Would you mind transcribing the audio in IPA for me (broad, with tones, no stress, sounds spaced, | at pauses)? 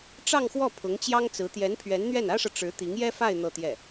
ʈ͡ʂ ɑ˥˧ ŋ x w ɔ˥˩ pʰ ʊ˧˥ ŋ t͡ɕ j ɑ˥ ŋ t͡s ɹ̩˧˥ t̪ j ɛ˧˥ n pʰ ɥ ɛ˧˥ n n̪ ɥ ɛ˥˩ n ä˥ ʂ ɤ˨ ʈ͡ʂ ɻ̩˧˥ t̪ i˧˥ ŋ j ɛ˥ f a˥˧ ɪ̯ n̪ ɤ˥˧ t̪ j ɛ˥˩